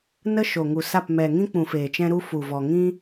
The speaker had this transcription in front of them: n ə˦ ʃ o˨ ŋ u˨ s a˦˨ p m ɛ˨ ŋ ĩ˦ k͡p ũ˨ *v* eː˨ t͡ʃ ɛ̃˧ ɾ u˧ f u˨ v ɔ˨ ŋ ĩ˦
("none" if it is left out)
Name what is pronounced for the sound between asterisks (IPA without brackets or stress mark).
f